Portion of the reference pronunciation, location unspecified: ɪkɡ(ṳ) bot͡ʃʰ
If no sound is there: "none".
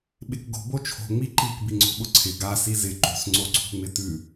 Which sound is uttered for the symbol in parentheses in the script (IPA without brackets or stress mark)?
o̤